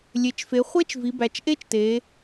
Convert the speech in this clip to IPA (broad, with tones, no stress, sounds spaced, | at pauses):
lʲ e˩˧ t͡ʃ f e˩˧ χʷ e˦˥ t͡ʃ v i˩˧ b æ˩˧ t͡ʃ ʔ e˦˥ t͡ʃ t e˩˧